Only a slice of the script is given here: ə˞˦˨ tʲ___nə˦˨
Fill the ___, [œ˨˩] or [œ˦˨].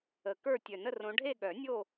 œ˨˩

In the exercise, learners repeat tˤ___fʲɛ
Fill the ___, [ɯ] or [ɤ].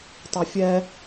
ɤ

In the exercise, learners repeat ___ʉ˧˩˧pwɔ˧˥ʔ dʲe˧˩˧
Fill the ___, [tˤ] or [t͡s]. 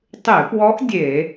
tˤ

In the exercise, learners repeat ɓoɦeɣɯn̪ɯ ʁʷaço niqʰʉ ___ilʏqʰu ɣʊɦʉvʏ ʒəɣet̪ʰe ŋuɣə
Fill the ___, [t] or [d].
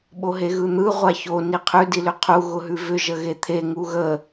d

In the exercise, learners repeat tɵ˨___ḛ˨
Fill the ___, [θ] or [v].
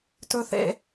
θ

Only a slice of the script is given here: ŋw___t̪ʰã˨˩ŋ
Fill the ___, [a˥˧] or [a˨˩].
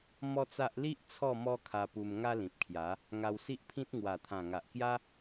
a˨˩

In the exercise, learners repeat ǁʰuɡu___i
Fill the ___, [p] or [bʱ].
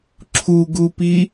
p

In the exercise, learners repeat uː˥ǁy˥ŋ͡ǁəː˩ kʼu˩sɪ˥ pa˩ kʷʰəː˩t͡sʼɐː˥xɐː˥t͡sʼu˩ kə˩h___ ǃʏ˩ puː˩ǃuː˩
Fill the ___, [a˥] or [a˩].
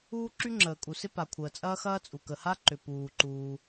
a˥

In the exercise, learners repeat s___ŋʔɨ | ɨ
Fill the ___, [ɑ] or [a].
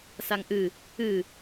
a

